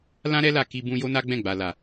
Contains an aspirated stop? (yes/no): no